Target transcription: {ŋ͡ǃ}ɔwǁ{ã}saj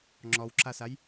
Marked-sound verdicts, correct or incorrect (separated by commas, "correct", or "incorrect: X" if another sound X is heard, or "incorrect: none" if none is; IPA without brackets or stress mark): incorrect: ŋ͡ǁ, incorrect: a